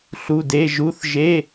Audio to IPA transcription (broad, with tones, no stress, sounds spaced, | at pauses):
ɬ u˩˧˩ d e˩˧˩ ʒ u˧˥˧ θ ʒ e˧˥˧